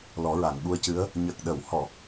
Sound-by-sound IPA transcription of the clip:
l ɔ˨˩˦ ɹ a˨˩˨ ŋ ɓ u˧ ə̯ c ɨ˧˥ ə̯ | ɲ ə˨˩ k̚ ɗ ə˨˩˨ w h ɔ˨˩˨

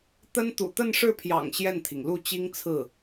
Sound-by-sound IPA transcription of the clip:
t̪ ə˥ n t̪ ṵ˨˩ t̪ ə˥˧ n ʂ ɻ̩˥˩ pʰ j ɑ̰˨˩ ŋ ɕ j ɛ˥˩ n t̪ʰ i˩ ŋ l u˥˩ t͡ɕ i˥ ŋ t͡sʰ ɹ̩˥˩

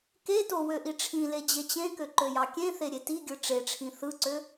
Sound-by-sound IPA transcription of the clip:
k e t o w ø ʔ i ʈ͡ʂʰ ĩ l e d͡ʑ e t͡ɕ ẽ k ø ǃ ø j ɑ kʲ ẽ θ e ɾʲ e t i ɡʲ ɯ ʈ͡ʂ e ʈ͡ʂʰ ĩ θ ɯ ǀ ø

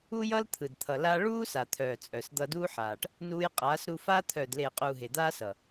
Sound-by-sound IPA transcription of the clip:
u˦ j ʌ˦ l t̪ʰ ɯ˨ d t̪ʰ ʌ˨ l a˦ ɭ uː˦ s a˨ t̪ʰ œː˨ t͡sʼ œ˨ s d̪ ʌ˧ d uː˦ ħ aː˨ ʈ | n uː˧ j qʼ aː˨˦ s ɾ u˧ f aː˦ t̪ʰ œː˨ d l eː˨ qʼ uː˨ ɦ e˨ d̪ aː˦ s ʌ˨

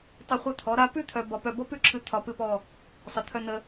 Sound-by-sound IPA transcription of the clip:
tˤ ə˧˩ χʷ ə˧˩ t̪ʰ ɔ˩˧ ɾ a˧ p ʉ˥˧ t̪ʰ œ˧ b ɒ˧ p œ˧˩ b ɔ˥ p ʉ˥˧ ǁʰ ɨ˧˩ t̪ʰ ɒ˧ p ɨ˥˧ p ɔ˥˧ | sˤ ə˩˧ t̪ʰ œ˧ n ə˧

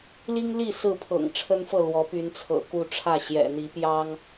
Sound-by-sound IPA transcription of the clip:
l i˦ ŋ l i˥˨ s ɹ̩˥˨ pʰ ɤ̰˨˩ ŋ ʈ͡ʂʰ ə˦ n f ɤ˥˨ l w ɔ˨˦ p y˨˦ n t͡sʰ ɤ̰˨˩ k u˥˨ ʈ͡ʂʰ ä˥˨ ɕ j ɛ̰˨˩ n̪ i˨˦ p j ɑ˦ ŋ

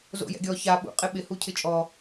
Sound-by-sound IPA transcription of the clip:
z o̰ j ɛ̰ ɡʲ ɔ ç a ɓ ṵ qʼ ɪ ɓ ɪ h u cʰ ɪ t͡ʃʼ ɔ

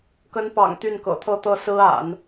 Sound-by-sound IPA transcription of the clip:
k ə˧˥ n p ɑ̰˨˩ ŋ t̪ y˥˩ n k ɤ̰˨˩ t̪ʰ ɤ˥˧ t̪ ɤ˥˩ s ɹ̩˥ a̰˨˩˦ n

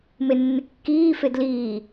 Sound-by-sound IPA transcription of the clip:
m e nː ɪ kː iː f e d l iː

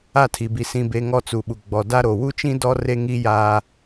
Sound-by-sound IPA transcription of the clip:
a˦˨ tʰ i˨ b i˨ s ĩ˨ b e˨ ŋ ɔ˦ t͡s u˨ ɓ u˨ ɡ͡b ɔ˨ d a˦ ɾ o˨ w u˦ t͡ʃ ĩ˦ d ɔ˦ r e˦ ŋ i˦ j aː˦

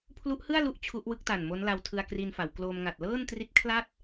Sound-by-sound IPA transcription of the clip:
pʰ l u˦˥ ʔ h ɯ˥˩ a̯ l u˥˩ ʔ t͡ɕʰ u˦˥ ʔ w ɯ˦˥ k̚ t a˨˩ n m o˦˥ n l a˧ w tʰ ɯ˧ a̯ k r i˧ n f a˩˦ w k l o˧ m ŋ a˨˩ t̚ l ɤː˥˩ n t r i˦˥ t̚ kʰ l a˥˩ t̚

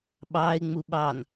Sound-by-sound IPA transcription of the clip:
ɓ ɑ ɪ̯ ŋ͡m u ɓ ɑ n

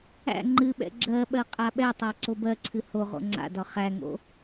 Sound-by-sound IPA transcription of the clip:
æ̰ ŋ͡ǃ ɨ ɓ ɛ̰ ɡ͡ǁ ɜ ɓ ɜ qʼ a ɓ ɛ tˤ æ ǀ o b ɜ ǀʰ ɨ h o ʁ o̰ ŋ͡ǀ a̰ d ɒ χ æ ŋ o̰

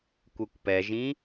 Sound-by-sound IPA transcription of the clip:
kʷ e kʷ p ɛ ʒ ĩ

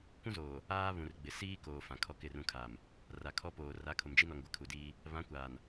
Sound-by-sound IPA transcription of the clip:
kʷ ũ˦ z oː˨ | aː˦ β ũ˨ r ɡ͡b ɪ˨ s iː˦ k oː˨ f ã˨ kʰ ɔ˦ k ɪ˦˨ r ũ˦ kʰ a˨ m | r a˨ kʰ ɔ˦ p oː˨ r a˨˦ kʰ ʊ˨ m d͡ʒ i˦ n ɔ˨ ŋ ɡʷ ɪ˦ kʰ u˨ d iː˦ | β ã˨˦ kʷ aː˨ n

